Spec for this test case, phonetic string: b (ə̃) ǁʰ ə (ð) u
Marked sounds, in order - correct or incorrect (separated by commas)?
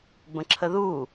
correct, correct